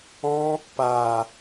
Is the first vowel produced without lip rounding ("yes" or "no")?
no